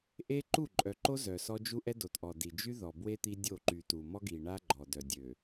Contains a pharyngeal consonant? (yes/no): no